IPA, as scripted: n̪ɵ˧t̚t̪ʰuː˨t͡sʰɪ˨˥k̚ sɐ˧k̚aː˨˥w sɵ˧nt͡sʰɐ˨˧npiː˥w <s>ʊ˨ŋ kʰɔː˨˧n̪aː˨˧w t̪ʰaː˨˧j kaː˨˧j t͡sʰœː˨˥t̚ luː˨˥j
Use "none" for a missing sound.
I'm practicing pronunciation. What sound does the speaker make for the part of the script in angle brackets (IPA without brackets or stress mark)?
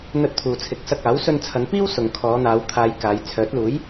s